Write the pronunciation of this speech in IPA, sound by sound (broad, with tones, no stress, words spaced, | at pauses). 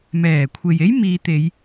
mɛː˨˩kʷʰe˨je˥j miː˧ t̪e˨˧j